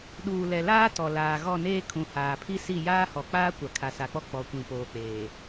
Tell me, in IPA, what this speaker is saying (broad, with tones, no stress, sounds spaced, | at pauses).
ɗ uː˨ l ɛ˨ l aː˦ t ɔ˨ l aː˨ ɣ ɔ˦˨ n eː˦ kʰ ũ˨ h aː˨ pʰ i˦ s i˦˨ j aː˦ h ɔ˨ k͡p aː˦ kʷ a˨ kʰ a˨ s a˨ k͡p ɔ˦ k͡p ɔ˨ kʷ ĩ˨ p oː˨ k͡p eː˨